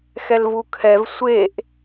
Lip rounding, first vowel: unrounded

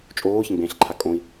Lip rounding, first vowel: rounded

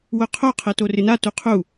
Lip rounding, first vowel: rounded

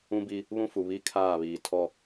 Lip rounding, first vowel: rounded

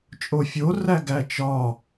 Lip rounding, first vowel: rounded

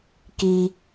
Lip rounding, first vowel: unrounded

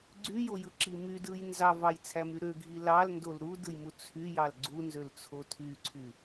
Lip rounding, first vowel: rounded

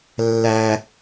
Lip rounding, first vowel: unrounded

